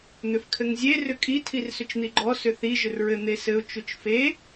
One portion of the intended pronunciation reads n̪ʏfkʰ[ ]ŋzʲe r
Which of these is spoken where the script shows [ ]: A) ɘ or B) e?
A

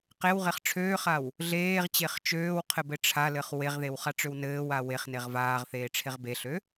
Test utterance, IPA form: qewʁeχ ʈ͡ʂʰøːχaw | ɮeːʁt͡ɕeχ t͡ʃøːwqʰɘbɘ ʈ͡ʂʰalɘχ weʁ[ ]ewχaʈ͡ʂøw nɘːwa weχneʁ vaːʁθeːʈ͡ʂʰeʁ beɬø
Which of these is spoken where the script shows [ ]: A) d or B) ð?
B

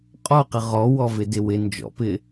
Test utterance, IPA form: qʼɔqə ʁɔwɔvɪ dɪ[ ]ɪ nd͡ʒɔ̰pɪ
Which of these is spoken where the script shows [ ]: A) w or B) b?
A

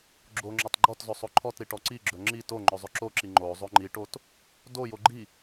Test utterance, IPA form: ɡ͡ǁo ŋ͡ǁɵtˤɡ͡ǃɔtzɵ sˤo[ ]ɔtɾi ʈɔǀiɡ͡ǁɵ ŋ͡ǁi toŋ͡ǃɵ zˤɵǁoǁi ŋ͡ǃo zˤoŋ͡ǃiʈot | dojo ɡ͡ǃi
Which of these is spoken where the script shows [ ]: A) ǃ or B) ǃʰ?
B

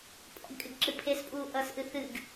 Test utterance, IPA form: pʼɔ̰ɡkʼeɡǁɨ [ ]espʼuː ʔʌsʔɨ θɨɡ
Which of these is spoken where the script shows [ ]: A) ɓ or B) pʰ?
B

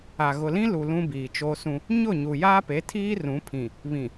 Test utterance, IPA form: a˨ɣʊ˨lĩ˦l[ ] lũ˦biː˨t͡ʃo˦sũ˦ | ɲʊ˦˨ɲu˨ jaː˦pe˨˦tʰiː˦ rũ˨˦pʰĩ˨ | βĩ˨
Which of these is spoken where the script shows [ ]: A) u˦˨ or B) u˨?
B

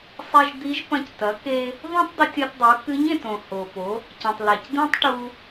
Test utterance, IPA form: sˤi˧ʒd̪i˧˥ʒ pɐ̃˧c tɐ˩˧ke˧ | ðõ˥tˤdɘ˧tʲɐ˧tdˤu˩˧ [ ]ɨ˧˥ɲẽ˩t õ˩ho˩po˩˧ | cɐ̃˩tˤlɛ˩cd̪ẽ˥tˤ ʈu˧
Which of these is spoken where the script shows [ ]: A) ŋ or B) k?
B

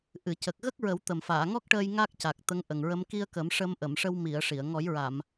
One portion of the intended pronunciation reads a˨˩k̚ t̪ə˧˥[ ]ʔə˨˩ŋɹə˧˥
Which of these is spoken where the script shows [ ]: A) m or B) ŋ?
B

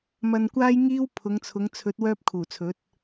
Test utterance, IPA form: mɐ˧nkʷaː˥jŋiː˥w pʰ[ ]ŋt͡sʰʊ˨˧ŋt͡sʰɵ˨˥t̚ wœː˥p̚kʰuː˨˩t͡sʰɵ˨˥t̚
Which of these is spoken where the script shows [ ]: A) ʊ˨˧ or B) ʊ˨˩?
A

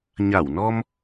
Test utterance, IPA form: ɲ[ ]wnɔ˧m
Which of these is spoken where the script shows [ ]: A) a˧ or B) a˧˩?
B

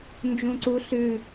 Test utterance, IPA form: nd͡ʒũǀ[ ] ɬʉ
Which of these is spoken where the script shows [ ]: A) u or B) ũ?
A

